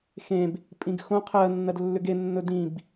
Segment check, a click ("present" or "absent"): absent